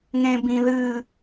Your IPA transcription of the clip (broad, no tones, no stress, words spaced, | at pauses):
ŋẽbĩðɨ